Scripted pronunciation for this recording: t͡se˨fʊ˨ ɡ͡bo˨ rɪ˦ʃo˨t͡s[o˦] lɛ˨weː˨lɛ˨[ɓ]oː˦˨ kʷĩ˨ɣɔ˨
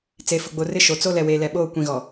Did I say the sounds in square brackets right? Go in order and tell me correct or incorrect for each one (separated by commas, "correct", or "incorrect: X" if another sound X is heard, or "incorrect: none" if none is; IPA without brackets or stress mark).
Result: correct, correct